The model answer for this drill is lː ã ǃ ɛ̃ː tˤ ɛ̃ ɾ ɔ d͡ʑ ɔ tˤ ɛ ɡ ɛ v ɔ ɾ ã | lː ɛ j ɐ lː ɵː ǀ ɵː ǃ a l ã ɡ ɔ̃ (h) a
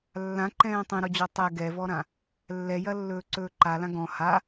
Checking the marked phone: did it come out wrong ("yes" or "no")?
no